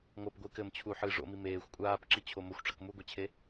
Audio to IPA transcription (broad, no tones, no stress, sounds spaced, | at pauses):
ŋʷ ɐ p ɡʷ ɨː k ɘ m t͡ɕʰ u ħ ɨ ʐ o̰ m i m eː xʷ kʷʼ aː p ǁ i t͡ɕʰ o m o xʷ ʈ͡ʂ ɐ k m u ɡʷ e t͡ɕʰ e